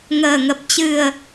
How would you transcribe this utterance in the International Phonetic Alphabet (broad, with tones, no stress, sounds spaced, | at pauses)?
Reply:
ŋ əː˨˩ ŋ ə˨˩ p̚ t͡ɕ ɨ˨˩ ə̯